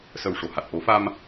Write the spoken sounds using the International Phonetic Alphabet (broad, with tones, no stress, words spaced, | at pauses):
sə˨˩w ʂo˨˩˨ha˨˩t̚ ʔo˨˩˦fa˧m